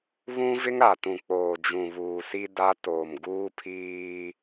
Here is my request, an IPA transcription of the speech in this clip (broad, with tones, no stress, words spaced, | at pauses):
βũ˦vɪ˦ŋ ɾa˨tũ˨ k͡poː˨d͡ʒũ˨βuː˨si˦ da˦ toː˨mɡuː˦pʰiː˦